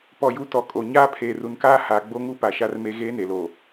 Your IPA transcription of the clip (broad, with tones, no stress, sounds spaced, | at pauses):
p ɔ˨ j u˨ t ɔ˨ kʼ o˨ ɲ aː˦ pʰ eː˨ r u˨ n k aː˦ h aː˨ ɡ͡b o˦ ŋ u˦ p a˨ ʃ a˦ r m e˦ ɣ eː˦ n e˨ l o˨